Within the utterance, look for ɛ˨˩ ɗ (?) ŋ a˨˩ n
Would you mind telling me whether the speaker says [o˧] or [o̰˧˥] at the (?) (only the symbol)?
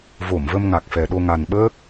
o˧